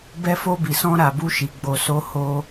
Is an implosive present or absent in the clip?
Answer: absent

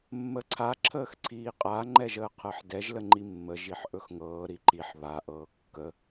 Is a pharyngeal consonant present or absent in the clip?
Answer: present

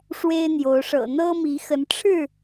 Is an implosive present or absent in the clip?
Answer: absent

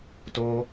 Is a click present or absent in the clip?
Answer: absent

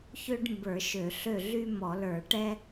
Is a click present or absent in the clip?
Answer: absent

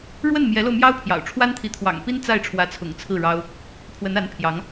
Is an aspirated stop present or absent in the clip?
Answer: present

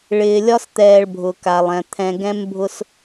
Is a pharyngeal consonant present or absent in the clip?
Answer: absent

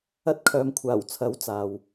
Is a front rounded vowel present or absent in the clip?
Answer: present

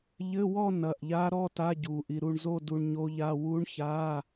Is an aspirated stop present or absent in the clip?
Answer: absent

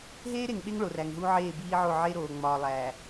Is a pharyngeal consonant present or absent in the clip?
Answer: present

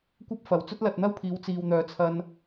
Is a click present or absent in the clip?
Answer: absent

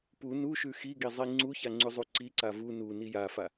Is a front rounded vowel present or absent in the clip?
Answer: absent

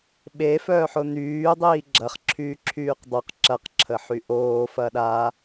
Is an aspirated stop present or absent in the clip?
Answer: present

